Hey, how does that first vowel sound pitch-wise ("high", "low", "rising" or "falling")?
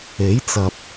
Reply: rising